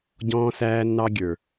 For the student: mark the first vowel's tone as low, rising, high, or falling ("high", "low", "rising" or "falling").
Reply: high